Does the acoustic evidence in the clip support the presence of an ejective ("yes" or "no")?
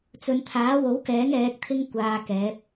no